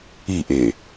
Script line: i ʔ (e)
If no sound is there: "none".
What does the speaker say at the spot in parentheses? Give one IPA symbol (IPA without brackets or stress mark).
e